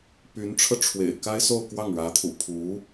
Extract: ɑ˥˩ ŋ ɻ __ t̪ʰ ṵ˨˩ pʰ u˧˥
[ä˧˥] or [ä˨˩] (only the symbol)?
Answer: ä˧˥